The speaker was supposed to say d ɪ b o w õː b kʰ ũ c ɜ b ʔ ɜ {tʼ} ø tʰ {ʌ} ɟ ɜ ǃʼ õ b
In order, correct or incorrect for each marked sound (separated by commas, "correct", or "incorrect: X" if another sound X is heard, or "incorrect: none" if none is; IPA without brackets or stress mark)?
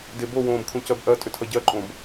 correct, correct